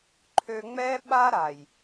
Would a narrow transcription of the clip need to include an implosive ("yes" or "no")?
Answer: yes